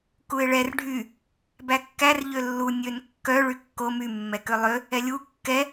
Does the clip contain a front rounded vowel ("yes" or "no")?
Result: yes